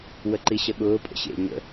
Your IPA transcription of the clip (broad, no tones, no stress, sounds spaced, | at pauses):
w ə ǃ i ɕ ə ɠ ʊː pʼ ə̰ ɕ ḛ ɲ ə̰